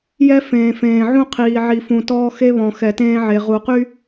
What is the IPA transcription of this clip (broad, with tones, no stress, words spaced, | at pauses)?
jɛ˦ fẽː˨fẽː˨ʕũ˦ qʰiː˨ ʕi˨fũ˨tɔː˦ xe˦βɔ̃˨ xɛ˨tẽː˦ʕe˨ ʁu˨qy˦